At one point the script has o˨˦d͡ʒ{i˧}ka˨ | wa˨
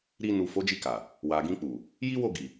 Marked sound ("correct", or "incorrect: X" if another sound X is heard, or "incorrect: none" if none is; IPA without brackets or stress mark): correct